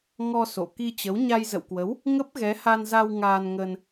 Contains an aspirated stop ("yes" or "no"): no